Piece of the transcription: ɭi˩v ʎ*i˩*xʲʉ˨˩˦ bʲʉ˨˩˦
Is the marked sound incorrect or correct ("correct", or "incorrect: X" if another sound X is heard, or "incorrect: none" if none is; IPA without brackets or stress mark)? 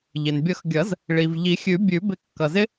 incorrect: i˨˩˦